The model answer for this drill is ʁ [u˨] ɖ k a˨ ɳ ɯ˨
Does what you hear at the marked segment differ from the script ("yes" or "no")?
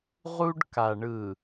yes